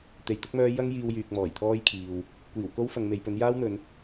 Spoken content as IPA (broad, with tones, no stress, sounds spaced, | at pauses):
t̪ e˨ j t̪ ʊ˥ k̚ m œː˥ j ɐ˥ ŋ j iː˧ w j yː˨ k̚ m ɔː˨˩ j t̪ʰ ɔː˥ j kʰ iː˨ w | kʷ iː˨˩ w k o˥ w f ɐ˨˧ ŋ m e˨˧ j p ɵ˨˥ n j aː˥ w n̪ ɵ˨˧ n